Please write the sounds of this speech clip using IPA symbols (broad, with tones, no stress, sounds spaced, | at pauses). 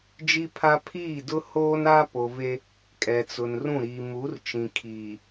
d͡ʒ i˦ pʰ a˦ pʰ iː˦˨ d ʊ˦ h oː˦ n a˦ p o˨ v e˦ | kʼ ɛ˨ t͡s ʊ˨ n r ũ˦˨ ɾ iː˨ m u˨˦ r t͡ʃ ĩ˨ kʰ iː˨